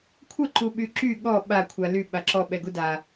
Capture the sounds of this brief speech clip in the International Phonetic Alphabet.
kʷʰ ə ǃ u ɓ y ǁ y ɠ ɔ ɓ a kʷʰ a l y ɓ a ǁ ɔ ɓ ɛ ɡ u d a

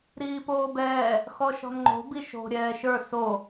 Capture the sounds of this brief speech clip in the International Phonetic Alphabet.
ɾ iː p oː b ɛː | x ɔ ʃ ɔ̤ n ŋ͡ǃ o̤ b i ʃ o̤ ɾʲ ɛː ʃ ə˞ s o

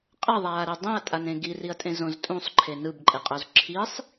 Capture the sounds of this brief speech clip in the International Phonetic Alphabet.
qʼ ʌ ðˤ aː ɾ e dˤ ĩ ɐ̯ tʼ a n ẽ ɡ i r i ɐ̯ tʼ ẽ z õ z tʼ ũ sˤ ǃʰ e n ɯ b ǃʼ e qʼ o z ǁʰ i sˤ

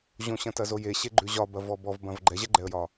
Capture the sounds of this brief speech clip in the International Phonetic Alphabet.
ʑ õ ɕ ɐ̃ t ɐ z o j e ɕ e ɡ͡ǃ ʉ ʑ ɒ b ɐ v ɔ b ɔ v b ɐ̃ v ɡ͡ǃ ɛ ʑ ɛ ɡ͡ǃ ɛ ə̯ j ɒ

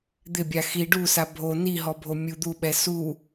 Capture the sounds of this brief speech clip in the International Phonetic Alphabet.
d̪ ɪ bʲ a x i ɖ u s a bʱ o n i ɦ ɔ bʱ o mʲ u d̪ u ɓ ɛ s u

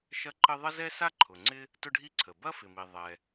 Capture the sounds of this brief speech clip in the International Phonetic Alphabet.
ʃ ɐ˥ ǃ ə˥ ðˤ ə˥ z ɛ˥ s a˥ ǃʰ ʊ˩ ŋ͡ǀ ɪ˥ | t ʊ˥ ɖʱ i˥ ǀʰ ə˩ b ɐ˥ f ɪ˩ m i˩ ðˤ ɛ˩

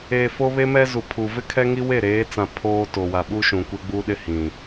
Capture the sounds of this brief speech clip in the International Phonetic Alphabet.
e˨ f o˦ β e˦ m ɛ˦ z u˨ pʰ u˨ v ɪ˦ kʰ ɛ˦ ŋ i˦ w e˦˨ ɾ eː˨˦ t͡s ã˨ pʰ oː˦ t o˨ w a˨ ɓ u˦ ʃ ũ˨ kʷ e˦ ɡ͡b u˦ ɗ ɪ˦ h ĩ˨

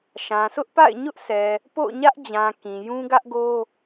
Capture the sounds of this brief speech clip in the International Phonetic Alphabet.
ʃ ã˨ s ʊ˦ ʔ p a̰˦˨ ɪ̯ ɲ ʊ˦ ʔ sʰ ɛ˨ | p o̰˦˨ ʊ̯ ɲ ä˦ ʔ d͡ʑ ã˨ k ĩ˨ j ũ˦ ɡ ä˦ ʔ ɡ o˦

